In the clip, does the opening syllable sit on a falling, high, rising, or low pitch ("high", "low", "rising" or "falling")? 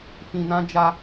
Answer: low